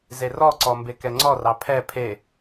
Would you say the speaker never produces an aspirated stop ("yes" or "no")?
no